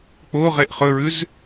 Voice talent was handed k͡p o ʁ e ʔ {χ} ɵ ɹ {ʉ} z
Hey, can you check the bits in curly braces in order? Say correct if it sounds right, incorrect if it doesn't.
correct, correct

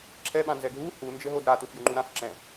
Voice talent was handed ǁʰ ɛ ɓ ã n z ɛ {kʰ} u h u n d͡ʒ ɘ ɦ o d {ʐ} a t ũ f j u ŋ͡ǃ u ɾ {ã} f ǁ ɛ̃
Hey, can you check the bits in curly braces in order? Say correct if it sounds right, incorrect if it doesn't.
incorrect: ɡʱ, incorrect: ɾ, correct

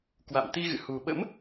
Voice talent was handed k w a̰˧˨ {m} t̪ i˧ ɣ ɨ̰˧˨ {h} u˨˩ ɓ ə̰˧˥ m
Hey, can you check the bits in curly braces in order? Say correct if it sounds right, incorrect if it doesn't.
correct, correct

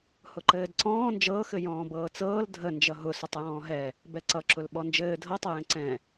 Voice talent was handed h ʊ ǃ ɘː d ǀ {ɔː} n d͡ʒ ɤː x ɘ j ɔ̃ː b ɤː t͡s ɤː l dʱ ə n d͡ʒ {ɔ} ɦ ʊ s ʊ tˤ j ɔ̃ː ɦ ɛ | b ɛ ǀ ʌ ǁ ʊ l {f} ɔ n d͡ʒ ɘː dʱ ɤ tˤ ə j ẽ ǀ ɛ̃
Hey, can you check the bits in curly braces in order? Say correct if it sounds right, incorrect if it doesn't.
incorrect: ɔ̃ː, incorrect: ʌ, incorrect: ɓ

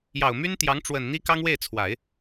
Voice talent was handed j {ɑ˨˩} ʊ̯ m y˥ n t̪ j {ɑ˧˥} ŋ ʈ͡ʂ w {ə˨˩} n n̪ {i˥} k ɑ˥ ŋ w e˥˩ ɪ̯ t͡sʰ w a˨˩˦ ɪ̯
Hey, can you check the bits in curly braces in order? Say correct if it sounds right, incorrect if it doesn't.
correct, correct, correct, correct

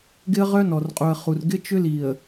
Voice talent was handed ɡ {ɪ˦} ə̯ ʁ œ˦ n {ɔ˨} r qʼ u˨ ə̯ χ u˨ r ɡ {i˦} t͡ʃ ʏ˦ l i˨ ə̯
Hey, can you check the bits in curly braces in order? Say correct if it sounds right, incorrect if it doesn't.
correct, correct, incorrect: ɪ˦

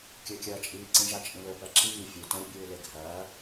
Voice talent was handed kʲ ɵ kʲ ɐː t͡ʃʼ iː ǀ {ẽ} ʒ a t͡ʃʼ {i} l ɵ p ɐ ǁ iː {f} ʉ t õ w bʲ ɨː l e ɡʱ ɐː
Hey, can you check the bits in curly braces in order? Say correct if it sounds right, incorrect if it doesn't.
incorrect: ĩ, incorrect: ĩ, incorrect: fʲ

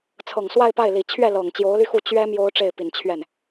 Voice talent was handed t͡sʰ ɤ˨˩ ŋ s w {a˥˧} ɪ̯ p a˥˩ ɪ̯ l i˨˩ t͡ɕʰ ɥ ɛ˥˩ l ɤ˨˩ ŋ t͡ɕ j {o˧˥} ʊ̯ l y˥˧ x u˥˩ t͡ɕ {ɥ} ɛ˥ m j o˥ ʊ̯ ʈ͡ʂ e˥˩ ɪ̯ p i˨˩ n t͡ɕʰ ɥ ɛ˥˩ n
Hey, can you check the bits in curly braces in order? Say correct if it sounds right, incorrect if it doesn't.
correct, correct, correct

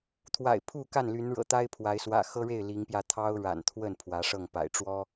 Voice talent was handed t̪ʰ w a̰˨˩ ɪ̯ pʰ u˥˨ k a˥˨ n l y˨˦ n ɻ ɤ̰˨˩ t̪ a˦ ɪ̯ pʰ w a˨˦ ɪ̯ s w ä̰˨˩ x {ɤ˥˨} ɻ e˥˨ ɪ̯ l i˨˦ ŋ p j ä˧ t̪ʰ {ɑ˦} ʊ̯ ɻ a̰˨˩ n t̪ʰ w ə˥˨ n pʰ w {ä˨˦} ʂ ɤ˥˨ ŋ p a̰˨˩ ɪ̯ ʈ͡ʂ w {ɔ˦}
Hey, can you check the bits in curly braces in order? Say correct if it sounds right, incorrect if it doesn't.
incorrect: ɤ˦, correct, correct, correct

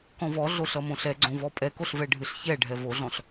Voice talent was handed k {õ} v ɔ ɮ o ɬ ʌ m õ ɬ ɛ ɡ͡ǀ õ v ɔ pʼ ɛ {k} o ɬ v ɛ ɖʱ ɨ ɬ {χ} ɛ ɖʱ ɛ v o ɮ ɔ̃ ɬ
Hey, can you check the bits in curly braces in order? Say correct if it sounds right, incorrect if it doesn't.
incorrect: ɔ̃, correct, incorrect: ç

